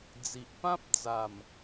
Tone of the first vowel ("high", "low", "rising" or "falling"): low